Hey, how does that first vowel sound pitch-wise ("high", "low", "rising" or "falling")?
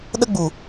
high